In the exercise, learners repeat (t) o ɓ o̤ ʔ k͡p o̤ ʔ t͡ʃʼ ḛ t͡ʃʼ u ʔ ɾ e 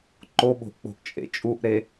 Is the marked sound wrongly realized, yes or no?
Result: yes